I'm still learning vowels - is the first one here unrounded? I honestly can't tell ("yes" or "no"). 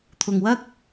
no